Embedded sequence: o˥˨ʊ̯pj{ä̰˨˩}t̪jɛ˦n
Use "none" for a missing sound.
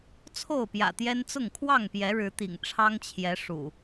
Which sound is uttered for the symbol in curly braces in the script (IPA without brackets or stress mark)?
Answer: ä̰˨˩